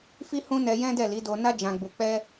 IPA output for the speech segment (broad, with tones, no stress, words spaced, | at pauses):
fi˧ hũ˦nɛ˧jɛ̃˦dɛ˦˨ li˨˦ do˧na˦ d͡ʒã˧ɡ͡bu˧ k͡pɛ˧